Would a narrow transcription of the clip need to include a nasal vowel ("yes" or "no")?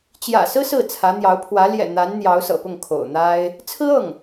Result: no